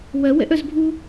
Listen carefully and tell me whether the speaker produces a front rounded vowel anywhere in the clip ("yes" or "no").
yes